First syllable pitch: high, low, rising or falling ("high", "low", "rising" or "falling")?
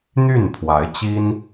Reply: falling